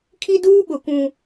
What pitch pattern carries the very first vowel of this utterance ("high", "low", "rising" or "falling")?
high